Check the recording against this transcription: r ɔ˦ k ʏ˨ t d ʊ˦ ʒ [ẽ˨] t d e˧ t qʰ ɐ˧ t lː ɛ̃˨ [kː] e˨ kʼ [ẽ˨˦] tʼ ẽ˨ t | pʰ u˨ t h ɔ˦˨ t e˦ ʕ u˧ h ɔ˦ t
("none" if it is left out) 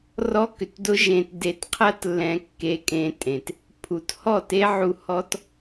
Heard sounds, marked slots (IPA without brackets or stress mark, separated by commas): ẽ˧, kː, ẽ˧